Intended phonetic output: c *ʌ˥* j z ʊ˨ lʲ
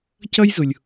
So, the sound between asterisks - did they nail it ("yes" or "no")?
yes